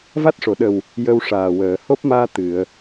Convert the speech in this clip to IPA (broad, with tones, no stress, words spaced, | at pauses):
va˦˥t̚ʂo˨˩˨ɗə˨˩w | jə˧wʂaː˨˩wəː˨˩˨ ho˦˥p̚maː˧ t̪ɨ˨˩˨ə̯